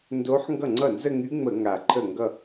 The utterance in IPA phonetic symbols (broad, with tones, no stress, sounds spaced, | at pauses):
n d o˧˥ ħ ŋ ɡ ʌ˥˩ ŋ͡ǀ ʌ˥˩ n z ə˥˧ ŋ y˧˥ ŋ͡m ə˧˩˧ ŋ a˨˩ ǃʰ ə˥˩ ŋ ɡ ʌ˥˧